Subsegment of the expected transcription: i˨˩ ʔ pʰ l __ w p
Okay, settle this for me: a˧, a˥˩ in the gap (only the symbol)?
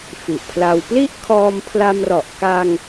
a˧